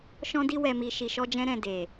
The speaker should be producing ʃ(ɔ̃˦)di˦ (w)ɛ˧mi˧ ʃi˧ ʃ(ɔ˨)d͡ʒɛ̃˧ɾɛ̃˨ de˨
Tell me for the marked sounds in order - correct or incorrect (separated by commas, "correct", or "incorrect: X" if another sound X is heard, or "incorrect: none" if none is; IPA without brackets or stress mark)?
correct, correct, incorrect: ɔ˧